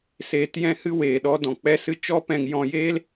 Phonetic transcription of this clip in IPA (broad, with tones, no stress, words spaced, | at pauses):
seː˧tjɛ̃˦hɨ˦ weː˨ɗɔ˧ dɔ̃˨k͡pɛ˦ sɨ˦ t͡ʃɔ˦pɛ̃˧ŋ jɔ̃˧jeː˦l